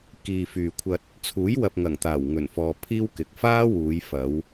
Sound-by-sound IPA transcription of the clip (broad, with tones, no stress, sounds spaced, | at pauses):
k iː˨ f yː˨ kʷʰ ɐ˧ t̚ | t͡sʰ uː˨˥ j w ɐ˨ p̚ ŋ ɐ˨˩ ŋ t̪ aː˨˩ w ŋ ɵ˨˩ n f ɔː˨ pʰ iː˥ w k ɪ˨ k̚ f aː˥ w uː˨˧ j f ɐ˨˧ w